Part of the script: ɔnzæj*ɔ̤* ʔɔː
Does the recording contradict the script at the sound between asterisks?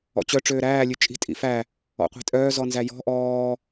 no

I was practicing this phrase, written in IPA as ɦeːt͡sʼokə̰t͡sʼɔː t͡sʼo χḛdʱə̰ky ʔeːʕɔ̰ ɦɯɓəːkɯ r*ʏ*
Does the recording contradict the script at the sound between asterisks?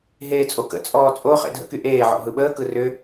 no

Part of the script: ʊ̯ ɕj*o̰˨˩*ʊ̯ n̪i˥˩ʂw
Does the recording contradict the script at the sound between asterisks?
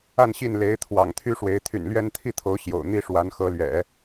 no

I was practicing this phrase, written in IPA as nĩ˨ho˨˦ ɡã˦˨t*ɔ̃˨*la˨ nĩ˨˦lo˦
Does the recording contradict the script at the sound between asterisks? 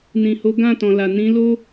no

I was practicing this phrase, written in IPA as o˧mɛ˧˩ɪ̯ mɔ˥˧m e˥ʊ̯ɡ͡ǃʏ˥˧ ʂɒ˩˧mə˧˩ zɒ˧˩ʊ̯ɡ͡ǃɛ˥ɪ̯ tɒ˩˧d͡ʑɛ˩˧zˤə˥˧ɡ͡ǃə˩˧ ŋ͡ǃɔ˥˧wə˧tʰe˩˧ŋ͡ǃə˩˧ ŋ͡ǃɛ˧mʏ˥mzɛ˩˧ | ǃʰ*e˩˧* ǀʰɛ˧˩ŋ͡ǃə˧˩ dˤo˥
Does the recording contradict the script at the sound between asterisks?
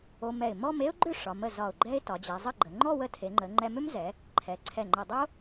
yes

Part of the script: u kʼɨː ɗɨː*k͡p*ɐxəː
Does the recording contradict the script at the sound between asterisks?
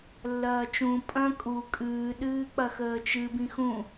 no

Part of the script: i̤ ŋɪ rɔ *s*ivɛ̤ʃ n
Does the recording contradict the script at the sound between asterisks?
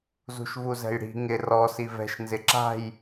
no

